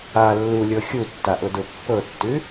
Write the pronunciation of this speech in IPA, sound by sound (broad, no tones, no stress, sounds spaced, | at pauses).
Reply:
a lː u lʲ ɤ xʲ u tː a ʔ ʊ d ʊ pː ɤ tː ʉ